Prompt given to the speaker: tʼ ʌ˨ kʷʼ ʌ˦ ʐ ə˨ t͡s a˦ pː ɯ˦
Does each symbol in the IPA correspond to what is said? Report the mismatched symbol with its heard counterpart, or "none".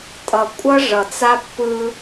ə˨ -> ʌ˨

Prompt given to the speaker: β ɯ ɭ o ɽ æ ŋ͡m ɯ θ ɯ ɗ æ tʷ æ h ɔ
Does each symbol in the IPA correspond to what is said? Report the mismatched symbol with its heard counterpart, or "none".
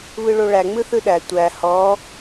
ɽ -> ɭ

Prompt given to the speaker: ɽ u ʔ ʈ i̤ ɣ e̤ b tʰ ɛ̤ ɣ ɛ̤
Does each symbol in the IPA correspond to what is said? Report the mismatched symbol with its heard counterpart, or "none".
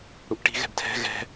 e̤ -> ɛ̤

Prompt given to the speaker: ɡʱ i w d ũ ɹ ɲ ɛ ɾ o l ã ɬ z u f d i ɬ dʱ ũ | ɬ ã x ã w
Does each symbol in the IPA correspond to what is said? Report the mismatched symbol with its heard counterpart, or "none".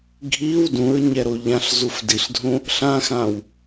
l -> ʎ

